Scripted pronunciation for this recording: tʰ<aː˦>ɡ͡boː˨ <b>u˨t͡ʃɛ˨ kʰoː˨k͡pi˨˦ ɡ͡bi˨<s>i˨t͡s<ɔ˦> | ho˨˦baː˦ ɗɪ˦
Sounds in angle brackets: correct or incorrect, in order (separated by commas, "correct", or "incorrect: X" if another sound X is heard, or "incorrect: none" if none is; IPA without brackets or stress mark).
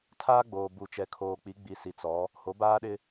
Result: correct, correct, correct, incorrect: ɔ˨˦